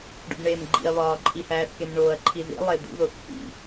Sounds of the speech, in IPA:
ɖṵbɳeːmɡ͡ǃḭɐ̯ βɒːǃʼihæːθkem ɳoːɐ̯ǃʰi ðḭ lˠed̪ṵðoθ hḭ

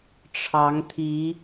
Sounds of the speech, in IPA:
ʈ͡ʂʰɑ˨˦ŋt̪ʰi˨˦

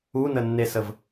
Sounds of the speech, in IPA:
unənːesəv

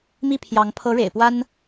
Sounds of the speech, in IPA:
mi˥˩pʰjɑ˧˥ŋ pʰɤ˧˥ɻḛ˨˩ɪ̯ pwa˥n

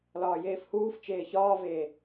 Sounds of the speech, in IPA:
lɒːjeːfhuːft͡ʃeː çɒːveː

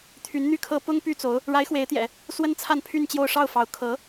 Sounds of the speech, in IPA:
t̪ʰy˧˥nn̪y˥˩kʰɤ˥ pʊ˥ŋ py˥t͡so˧˥ʊ̯ | ɻa˧˥ɪ̯xwe˧˥ɪ̯t̪jɛ̰˨˩˦ | swə˥nt͡sʰa˥˧npʰy˥˧nt͡ɕjo˥˧ʊ̯ ʂɑ˥˩ʊ̯fɑ˧˥ʊ̯ kʰɤ˧˥

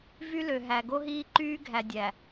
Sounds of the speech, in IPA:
vy˦lø˨ɦæ˨ ɡo˦ɦiː˦ǃyː˦ɡʱæ˨ dʲæ˨

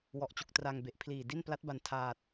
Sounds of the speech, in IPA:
wɔ˨˩ʔt͡ɕu˨˩k̚tra˧ŋ be˨˩ʔ pʰliː˨˩di˥˩n pla˦˥t̚ba˨˩n tʰaː˨˩t̚

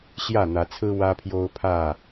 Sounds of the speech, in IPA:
ɕjä˥˨n̪ä˨˦t͡sʰɹ̩˦ wä˦pʰjo˦ʊ̯pʰä˥˨

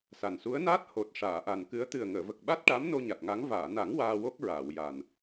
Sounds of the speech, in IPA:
sa˨˩nsu˧˥ə̯naː˦˥t̚ ho˨˩t̚ ʂaː˨˩˨ʔa˨˩nkɨ˧˥ə̯ t̪ɨ˨˩ə̯ŋəː˨˩˨və˨˩k̚ ɓa˦˥t̚ʈa˧˥m no˧ɲa˨˩t̚ŋa˧˥ŋ vaː˨˩˨na˨˩˦ŋ waː˧wo˦˥k̚ɹaː˨˩˨wja˨˩n

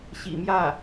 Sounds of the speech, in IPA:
ɕḭ˨˩mjä˥˩

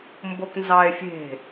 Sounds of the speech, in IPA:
mboknzɑe̯fʲe̤

